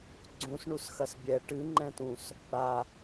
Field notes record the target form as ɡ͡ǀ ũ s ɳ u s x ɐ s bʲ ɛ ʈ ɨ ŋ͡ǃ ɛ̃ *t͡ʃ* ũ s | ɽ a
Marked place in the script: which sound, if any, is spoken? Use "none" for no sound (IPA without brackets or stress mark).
t